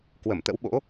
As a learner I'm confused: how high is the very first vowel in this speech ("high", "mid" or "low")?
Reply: mid